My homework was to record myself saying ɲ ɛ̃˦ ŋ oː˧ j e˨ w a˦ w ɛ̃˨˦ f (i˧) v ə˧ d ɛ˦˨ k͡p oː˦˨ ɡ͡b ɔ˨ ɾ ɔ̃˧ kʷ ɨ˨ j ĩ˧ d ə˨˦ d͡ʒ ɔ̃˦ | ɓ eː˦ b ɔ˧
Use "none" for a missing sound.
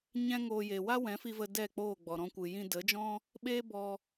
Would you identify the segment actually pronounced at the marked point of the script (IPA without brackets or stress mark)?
i˧